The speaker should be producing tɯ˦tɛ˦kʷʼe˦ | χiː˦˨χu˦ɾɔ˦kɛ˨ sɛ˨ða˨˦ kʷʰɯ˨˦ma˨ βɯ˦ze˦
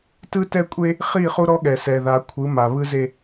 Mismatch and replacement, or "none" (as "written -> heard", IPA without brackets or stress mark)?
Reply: k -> ɠ